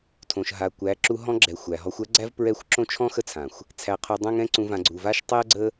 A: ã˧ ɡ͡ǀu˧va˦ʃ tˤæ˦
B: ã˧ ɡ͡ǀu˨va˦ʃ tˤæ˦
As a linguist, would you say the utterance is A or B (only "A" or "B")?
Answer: B